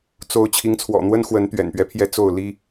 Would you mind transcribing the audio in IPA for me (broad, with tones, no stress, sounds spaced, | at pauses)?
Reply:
t͡s o˧˥ ʊ̯ t͡ɕʰ i˧˥ ŋ t͡sʰ w ɔ̰˨˩ n̪ w ə˥ n x w ə˧˥ n t̪ ɥ ɛ̰˨˩ n p ɥ ɛ˦ pʰ j ɛ˥˧ t͡s o˥˩ ʊ̯ l i˥